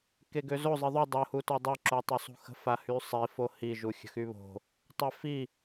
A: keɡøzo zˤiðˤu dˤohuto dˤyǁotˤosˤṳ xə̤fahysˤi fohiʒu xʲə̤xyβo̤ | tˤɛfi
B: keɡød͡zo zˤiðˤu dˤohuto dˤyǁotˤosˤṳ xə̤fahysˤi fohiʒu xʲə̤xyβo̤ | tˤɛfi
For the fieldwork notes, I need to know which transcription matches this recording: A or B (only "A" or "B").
A